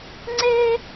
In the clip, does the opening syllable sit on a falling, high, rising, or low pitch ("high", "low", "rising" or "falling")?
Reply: high